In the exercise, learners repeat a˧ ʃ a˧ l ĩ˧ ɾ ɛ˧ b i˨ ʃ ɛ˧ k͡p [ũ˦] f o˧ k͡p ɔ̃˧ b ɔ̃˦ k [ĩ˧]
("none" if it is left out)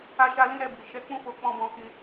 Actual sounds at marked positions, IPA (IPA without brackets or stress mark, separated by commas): ũ˦, ĩ˦